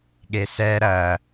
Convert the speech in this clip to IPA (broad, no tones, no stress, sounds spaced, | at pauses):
ɠ e s ɛ ɾ ɐ